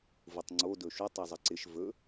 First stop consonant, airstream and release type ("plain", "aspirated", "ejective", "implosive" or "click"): plain